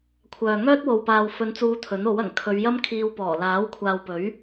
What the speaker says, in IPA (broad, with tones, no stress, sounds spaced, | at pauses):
kʷʰ œː˨ ŋ œː˥ t̚ w o˨ w p aː˨ w f ɵ˨˧ n t͡s uː˨˧ t̪ʰ ɵ˨˥ n o˨˥ w ɐ˨˩ ŋ kʰ ɵ˨˧ ɥ j ɐ˥ m kʰ iː˧ w p ɔː˨˩ l aː˨˥ w kʷʰ aː˨ w p ɵ˨˥ ɥ